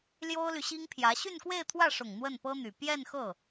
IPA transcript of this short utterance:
l j o˥ ʊ̯ l y˨ ɕ i˥ ŋ pʰ j ä˧˥ ɕ y˥˧ n k w e˥˧ ɪ̯ t̪ʰ w ä˥˩ ʂ ʊ˨˩ ŋ n̪ w ə˥˩ n p ɤ˥ n̪ y˨˩ p j ɛ˥˧ n x ɤ˥˩

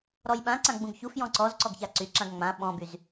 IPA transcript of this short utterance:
ɾ ɔ j ɓ ã ǀ ã ɡ͡b ũ ɡ ç u f j ɔ̃ ǀ ɔ z ǀ ɔ ɡ ç a ǀ y ǁ ã ɡ ŋ͡m ã ɓ ɔ̃ b y z

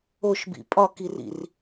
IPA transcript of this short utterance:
o ʃ b ḭ pʼ ɒ k i r ḭ r

